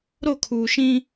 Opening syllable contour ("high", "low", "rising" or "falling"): falling